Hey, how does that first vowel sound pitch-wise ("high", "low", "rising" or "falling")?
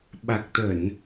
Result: low